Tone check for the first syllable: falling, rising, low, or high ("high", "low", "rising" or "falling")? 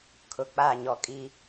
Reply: low